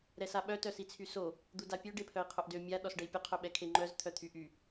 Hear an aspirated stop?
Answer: yes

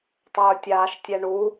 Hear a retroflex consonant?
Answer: yes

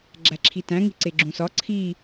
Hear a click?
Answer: yes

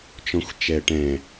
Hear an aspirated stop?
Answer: no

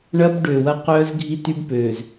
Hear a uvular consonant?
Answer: yes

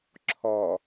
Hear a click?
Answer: yes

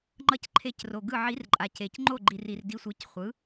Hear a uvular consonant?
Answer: yes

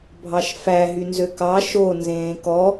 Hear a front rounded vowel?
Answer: yes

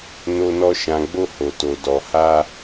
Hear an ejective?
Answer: no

